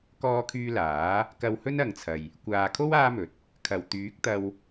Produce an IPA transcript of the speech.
k ɔː˧ kʰ yː˧ l aː˨˥ | k ɐ˧ w h ɵ˥ n ɐ˨ ŋ t͡sʰ ɐ˨ j | kʷ aː˨ kʰ o˥ w aː˥ m ɵ˨˥ t̚ | kʰ ɐ˨˩ w t̪ yː˨˥ k̚ t̪ ɐ˧ w

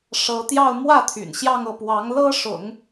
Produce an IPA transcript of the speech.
ʂ ɤ˧˥ t̪ j ɑ˥˧ ʊ̯ m w ä˥˩ t̪ʰ y̰˨˩ n ɕ j ɑ˥˧ ŋ ɤ˥˩ p w ɑ˧˥ ŋ l ɤ˥ ʂ ʊ̰˨˩˦ ŋ

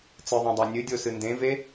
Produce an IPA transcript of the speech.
t͡s ɨ ðˤ õ dˤ a nʲ ɨ dʲ o s ɨ n d ẽ v e

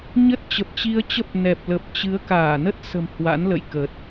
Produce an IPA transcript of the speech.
ɲ ə˦˥ t̚ t͡ɕ ə˨˩ p̚ t͡ɕ i˧ ə̯ t͡ɕ ə˦˥ p̚ n ɛ˨˩ p̚ l ə˨˩ p̚ t͡ɕ ɨ˨˦ ə̯ k aː˧˩ n ə˦˥ t̚ s ə̤˨˩ m h w a̰˧˥ n l ə̰˧˨ j k ə˨˩ t̚

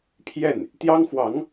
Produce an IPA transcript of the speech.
pʰ j ɛ˥˩ n | t̪ j ɑ˥ ŋ x w ɑ˧˥ ŋ

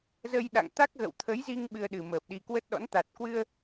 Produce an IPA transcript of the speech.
z ə˧ j ɗ a̰˧˨ ŋ t̪ a˦˥ k̚ ɣ ə̰˧˨ w t̪ʰ ə˨˦ j z i˧ ŋ ɓ ɨ˧ ə̯ ɗ ɨ˨˩ m əː˨˩ p̚ ɗ i˨˩ k w ə˦˥ t̚ ɗ ɔ̰˧˥ n t̪ a˨˩ t̚ k w ɨ˧ ə̯

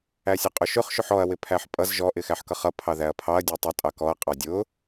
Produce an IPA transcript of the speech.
æ sʲ ʊ qʼ ʊ ʃ ʊ χ ʃ ʊ ħ ɔ ɐ̯ w ɪ pʰ æ ħ pʼ ʌ z ʒ ɔ ʔ ɪ x æ ħ k ʌ χ ʌ pʰ ɑ ð æ ɐ̯ pʰ ɑ ɐ̯ dʲ ɔ tˤ ʊ tʼ ɑ k ɔ ɐ̯ qʼ ɑ dʲ ʊ

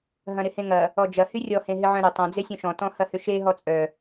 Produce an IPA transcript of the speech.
ɦ ɐ̃ ɾ ɪ h ẽ ŋ ɐ | ɔ d͡ʒ ɐ h y rʲ ɔ h ẽ ɦ ɪ ʕ œ̃ ɾ ʏ tˤ ɐ̃ d͡z e sʲ œ̃ ʃ ɔ̃ t ɔ̃ h ɐ h ʏ ʃ e ɦ ɔ t͡sʼ œ

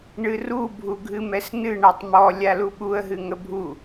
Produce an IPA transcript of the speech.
ɳ ɨ r u bʱ u ɡʱ ɨ m ɛ s n ɨ ɳ a tˤ m ɔ lʲ a l u ɓ u ə̯ ɦ ɨ ŋ ə bʱ u

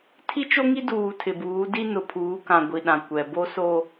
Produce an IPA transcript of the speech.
tʰ i˦ t͡ʃ o˦ ŋ i˦ d uː˨ tʰ ɪ˨ b uː˨˦ d i˦ n ʊ˨ pʰ uː˨˦ k ã˨ ɡʷ i˨ ɗ ã˨ kʷ ɛ˨ b o˦ s o˦

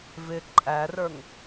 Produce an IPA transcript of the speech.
v ɪ ǃʼ æ r ə˞ ŋ

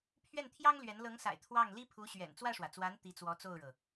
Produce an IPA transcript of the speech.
pʰ ɥ ɛ˥˩ n t̪ʰ j ɑ˥ ŋ l ɥ ɛ˧˥ n l ɤ˧˥ ŋ s a̰˨˩ ɪ̯ t̪ʰ w ɑ˥˩ ŋ l i˥ pʰ u˧˥ ɕ ɥ ɛ̰˨˩ n t͡s w ä˥˩ ʂ w ä˩ t͡s w a˧˥ n t̪ i˧˥ t͡s w ɔ˧˥ t͡s o˥˩ ʊ̯ ɻ ɤ˩

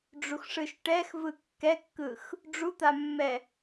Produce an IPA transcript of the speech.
ɖ͡ʐ u x ʂ ɯ ʃ ʈ ɛ x v ɯ kː ɛ kː ɯ x | ɖ͡ʐ u t̪ a mː ɛ

